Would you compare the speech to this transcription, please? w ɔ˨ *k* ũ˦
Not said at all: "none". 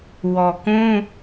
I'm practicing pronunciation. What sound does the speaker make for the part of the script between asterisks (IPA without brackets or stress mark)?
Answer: k